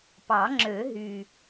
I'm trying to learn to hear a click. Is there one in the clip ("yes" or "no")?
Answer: yes